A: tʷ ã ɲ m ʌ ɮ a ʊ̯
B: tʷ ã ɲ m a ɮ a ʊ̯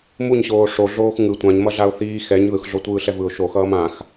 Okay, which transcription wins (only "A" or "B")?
A